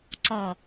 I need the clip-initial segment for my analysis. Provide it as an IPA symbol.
ǀ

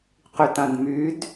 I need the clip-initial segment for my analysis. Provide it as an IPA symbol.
q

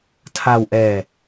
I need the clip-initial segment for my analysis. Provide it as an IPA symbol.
tʰ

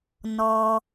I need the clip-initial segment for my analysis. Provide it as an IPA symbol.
n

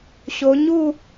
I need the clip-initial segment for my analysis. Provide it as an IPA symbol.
ɕ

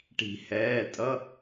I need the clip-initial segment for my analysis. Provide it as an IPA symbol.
ʈ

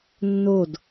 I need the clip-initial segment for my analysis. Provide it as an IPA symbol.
nː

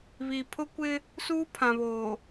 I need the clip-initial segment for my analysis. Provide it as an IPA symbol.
β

